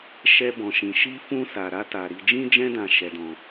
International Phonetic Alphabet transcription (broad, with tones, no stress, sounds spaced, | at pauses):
ʃ ɛ˦ b ɔ̃˧ ʃ ĩ˧ ʃ i˦ f ũ˦ s a˧ ɾ a˦ t a˧ ɾ i˧ d͡ʒ ĩ˦ d͡ʒ ɛ̃˦ d ã˧ ʃ ɛ˧ d ɔ̃˧